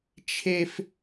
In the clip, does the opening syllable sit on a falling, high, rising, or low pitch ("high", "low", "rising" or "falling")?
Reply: high